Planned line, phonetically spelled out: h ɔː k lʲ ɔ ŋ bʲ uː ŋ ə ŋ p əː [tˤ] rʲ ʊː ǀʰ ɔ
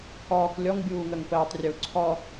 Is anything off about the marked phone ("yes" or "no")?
no